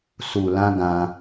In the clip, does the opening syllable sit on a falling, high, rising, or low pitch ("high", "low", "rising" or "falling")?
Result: low